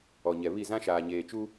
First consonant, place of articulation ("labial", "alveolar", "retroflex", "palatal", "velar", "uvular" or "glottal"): palatal